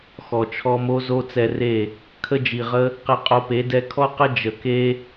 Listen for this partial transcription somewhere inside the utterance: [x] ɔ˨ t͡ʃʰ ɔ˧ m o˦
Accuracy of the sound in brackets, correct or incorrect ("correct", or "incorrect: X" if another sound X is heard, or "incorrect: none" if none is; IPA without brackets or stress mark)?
correct